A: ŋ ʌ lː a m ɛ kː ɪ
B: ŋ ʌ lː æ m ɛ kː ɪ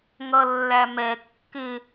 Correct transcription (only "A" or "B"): B